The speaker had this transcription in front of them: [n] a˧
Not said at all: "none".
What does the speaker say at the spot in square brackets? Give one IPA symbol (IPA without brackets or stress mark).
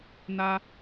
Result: n